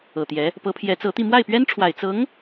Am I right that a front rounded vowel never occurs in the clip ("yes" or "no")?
yes